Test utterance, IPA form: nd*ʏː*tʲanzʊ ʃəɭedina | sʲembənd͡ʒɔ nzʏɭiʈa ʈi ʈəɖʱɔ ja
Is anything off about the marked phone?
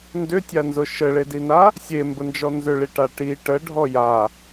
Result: yes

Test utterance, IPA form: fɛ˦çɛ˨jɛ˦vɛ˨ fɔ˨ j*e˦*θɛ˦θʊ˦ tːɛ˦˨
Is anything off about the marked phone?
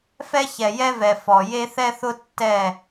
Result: no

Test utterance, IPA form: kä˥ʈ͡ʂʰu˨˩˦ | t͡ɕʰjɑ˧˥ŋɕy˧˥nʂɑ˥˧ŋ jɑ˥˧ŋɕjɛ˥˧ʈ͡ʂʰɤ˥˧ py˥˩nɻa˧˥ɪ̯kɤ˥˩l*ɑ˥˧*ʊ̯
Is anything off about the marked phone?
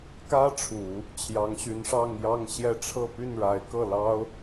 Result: yes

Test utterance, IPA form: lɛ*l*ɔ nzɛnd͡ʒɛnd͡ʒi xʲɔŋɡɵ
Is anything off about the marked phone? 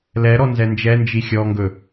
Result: yes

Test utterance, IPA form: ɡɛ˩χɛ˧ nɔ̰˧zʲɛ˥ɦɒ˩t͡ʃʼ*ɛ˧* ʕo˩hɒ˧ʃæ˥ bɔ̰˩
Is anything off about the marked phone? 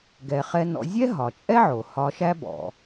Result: yes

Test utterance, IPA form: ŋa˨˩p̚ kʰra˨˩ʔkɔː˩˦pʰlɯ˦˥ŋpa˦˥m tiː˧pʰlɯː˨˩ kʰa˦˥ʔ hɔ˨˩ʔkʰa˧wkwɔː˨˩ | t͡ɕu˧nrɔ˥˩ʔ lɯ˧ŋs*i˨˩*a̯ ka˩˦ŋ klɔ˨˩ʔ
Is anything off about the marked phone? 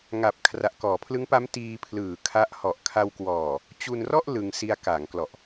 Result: yes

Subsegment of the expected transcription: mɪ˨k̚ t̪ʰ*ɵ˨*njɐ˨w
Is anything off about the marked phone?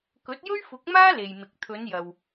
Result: yes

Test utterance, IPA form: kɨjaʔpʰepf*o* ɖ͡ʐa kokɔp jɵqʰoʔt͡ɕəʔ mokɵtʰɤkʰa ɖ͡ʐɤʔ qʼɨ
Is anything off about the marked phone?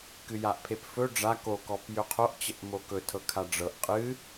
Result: yes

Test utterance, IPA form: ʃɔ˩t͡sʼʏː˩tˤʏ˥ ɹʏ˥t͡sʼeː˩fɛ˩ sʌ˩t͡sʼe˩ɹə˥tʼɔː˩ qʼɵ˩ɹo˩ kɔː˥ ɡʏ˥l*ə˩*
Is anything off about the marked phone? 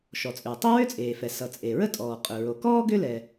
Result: yes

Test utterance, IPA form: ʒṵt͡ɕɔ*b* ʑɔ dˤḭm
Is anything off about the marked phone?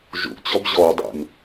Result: no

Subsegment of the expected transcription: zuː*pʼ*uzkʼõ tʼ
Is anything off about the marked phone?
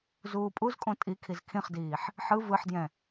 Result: no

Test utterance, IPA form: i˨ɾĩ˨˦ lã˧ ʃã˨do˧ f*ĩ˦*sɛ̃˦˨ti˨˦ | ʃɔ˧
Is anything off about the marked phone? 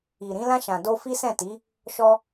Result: yes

